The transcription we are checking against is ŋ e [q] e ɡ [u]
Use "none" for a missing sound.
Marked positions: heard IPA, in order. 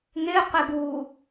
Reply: q, uː

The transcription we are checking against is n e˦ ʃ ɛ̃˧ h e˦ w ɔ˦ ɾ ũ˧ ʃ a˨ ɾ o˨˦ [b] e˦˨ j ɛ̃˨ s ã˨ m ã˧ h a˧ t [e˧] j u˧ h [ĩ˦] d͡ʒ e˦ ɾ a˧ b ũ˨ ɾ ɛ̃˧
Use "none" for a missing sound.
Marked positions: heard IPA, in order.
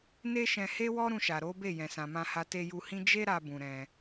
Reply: b, e˧, ĩ˦

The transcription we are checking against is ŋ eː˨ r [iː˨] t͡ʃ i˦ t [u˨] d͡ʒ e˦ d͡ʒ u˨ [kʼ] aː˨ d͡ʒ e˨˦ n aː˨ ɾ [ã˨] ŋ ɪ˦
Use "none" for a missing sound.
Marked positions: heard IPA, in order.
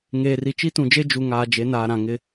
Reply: i˨, ũ˨, ŋ, ã˨

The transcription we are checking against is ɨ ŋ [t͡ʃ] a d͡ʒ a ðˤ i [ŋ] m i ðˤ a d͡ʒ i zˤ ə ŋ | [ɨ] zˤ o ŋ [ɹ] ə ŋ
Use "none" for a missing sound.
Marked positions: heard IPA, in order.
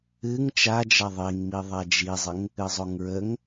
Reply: t͡ʃ, ŋ, ɨ, ɹ

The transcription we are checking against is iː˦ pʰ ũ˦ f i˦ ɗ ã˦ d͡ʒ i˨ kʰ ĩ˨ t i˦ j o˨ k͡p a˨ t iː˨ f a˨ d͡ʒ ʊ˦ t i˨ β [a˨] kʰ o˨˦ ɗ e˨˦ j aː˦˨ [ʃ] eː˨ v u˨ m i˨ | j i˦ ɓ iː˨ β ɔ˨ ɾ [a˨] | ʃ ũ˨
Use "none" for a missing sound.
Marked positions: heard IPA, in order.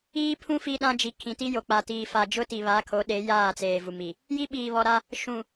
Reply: a˨˦, t͡s, a˦

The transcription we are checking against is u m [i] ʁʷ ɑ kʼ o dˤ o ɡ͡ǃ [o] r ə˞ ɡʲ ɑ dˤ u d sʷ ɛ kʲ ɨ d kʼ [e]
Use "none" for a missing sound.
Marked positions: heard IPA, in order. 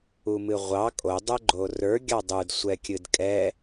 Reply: ɨ, o, ɛ

